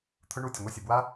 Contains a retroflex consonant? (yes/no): yes